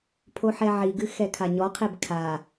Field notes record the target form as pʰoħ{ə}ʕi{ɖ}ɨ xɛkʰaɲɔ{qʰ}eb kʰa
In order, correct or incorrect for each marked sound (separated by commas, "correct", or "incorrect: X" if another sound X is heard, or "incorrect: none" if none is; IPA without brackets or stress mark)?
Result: incorrect: ɛ, incorrect: ɡ, correct